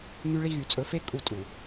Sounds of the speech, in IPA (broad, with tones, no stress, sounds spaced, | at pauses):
ŋ y˦ ɭ i˦ ɣ y˨ t͡sʼ ɵ˨˦ f e˦ kʼ u˦˨ tʼ u˨